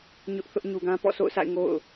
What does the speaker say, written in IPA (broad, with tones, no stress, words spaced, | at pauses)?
ɲʊ˦ʔ θʊ˦ʔɲu˨ɡã˦ pɔ̰˦˨so̰˦˨ʊ̯sa̰˦˨ɪ̯ ŋo̰˦˨ʊ̯